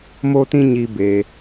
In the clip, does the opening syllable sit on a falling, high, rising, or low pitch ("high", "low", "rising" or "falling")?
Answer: high